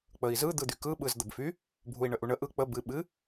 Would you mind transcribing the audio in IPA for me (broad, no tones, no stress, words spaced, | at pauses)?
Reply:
k͡pəi̯zɯ d̪ɯd̪ykɯ ɓɯzd̪əbfy | bʱui̯ɳəʔuɳə ʔɯ k͡pə bɨ ɓɨ